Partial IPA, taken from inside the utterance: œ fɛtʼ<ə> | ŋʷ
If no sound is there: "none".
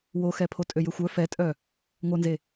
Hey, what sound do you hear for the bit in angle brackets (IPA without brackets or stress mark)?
œ